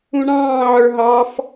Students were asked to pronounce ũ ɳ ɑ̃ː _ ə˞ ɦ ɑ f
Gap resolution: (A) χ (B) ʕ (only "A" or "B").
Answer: B